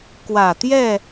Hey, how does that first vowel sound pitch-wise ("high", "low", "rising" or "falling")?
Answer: low